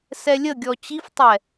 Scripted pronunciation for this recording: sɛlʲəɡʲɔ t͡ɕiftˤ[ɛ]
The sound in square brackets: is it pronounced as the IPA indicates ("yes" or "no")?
yes